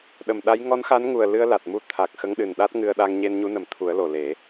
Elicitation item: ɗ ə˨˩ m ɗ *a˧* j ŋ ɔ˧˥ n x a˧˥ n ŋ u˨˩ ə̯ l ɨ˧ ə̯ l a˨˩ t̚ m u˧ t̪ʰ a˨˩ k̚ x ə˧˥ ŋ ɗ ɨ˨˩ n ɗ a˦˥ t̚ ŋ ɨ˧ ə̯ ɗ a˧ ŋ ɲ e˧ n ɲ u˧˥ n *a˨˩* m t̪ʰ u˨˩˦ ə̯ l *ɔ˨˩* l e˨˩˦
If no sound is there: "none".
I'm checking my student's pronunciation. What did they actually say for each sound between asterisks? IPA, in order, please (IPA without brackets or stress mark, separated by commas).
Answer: a˧˥, ə˨˩, o˨˩